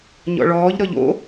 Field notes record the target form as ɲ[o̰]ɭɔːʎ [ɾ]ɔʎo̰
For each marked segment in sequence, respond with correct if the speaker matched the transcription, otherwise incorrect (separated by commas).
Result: incorrect, correct